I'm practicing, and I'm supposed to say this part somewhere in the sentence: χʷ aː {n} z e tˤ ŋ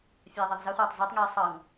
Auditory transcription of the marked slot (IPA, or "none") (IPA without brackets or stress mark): tˤ